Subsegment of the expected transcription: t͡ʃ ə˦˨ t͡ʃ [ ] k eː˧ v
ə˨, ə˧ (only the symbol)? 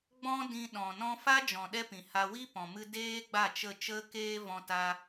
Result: ə˧